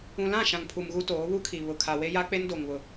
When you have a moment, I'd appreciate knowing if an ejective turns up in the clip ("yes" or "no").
no